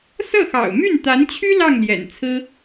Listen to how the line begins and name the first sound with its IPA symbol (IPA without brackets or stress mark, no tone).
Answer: s